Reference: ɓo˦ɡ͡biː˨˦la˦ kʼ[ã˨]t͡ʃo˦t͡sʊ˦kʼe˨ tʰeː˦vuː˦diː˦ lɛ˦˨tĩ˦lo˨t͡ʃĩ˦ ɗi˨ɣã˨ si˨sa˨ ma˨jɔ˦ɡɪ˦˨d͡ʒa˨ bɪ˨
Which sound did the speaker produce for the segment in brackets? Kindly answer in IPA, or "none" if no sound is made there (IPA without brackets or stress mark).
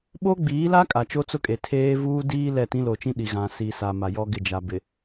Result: a˨